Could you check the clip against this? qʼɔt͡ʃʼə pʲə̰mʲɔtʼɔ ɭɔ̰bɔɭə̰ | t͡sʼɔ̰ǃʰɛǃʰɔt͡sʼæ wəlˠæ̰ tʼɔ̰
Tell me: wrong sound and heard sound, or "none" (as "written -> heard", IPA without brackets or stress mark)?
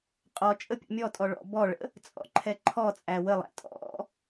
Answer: none